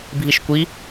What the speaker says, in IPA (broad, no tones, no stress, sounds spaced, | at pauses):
bʱ i ʃ kʷ i